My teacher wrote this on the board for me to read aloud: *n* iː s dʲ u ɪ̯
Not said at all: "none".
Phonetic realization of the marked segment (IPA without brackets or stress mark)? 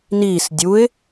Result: n